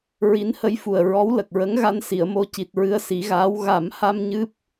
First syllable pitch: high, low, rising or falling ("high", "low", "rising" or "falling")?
rising